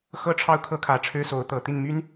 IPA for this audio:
xɤ˥ʈ͡ʂʰɑ˥˩ʊ̯kʰɤ˥ kʰä˨˩ ʈ͡ʂʰɻ̩˥so˧˥ʊ̯t̪ɤ˨˩ t̪i˥˩nmy˥n

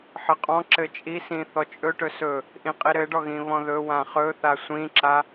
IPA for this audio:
ħɘqʼɔ̃ǁɘ t͡ʃʼisĩ θɔt͡ʃʼɵʈɵ sɵ | ʔĩqʼiɾɘɖɔ ɣĩβɔ̃ðɵwã χɵθa sʷĩǁa

